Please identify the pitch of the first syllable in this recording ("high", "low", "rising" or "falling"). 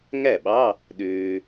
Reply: falling